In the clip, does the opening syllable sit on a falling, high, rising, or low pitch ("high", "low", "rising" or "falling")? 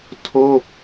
falling